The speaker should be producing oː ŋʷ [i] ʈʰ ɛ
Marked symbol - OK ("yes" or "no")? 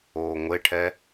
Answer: no